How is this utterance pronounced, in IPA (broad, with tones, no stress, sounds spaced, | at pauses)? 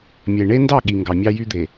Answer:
mʲ e˨ ɳ e˦ n d ɑ˦˨ ɠ i˨ ŋ ɡ ɑ˨ mʲ ɑ˦ j y˦ d̪ e˨